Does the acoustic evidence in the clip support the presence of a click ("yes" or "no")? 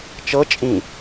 no